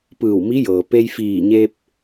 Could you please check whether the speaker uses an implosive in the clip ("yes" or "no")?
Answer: no